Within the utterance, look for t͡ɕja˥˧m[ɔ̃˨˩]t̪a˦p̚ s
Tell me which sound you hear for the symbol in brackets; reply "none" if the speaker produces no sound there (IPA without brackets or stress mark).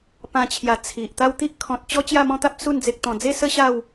ɔ̃˦